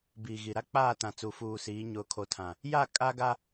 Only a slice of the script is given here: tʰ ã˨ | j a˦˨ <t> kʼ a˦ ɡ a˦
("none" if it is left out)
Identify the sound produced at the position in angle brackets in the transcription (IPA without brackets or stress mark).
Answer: none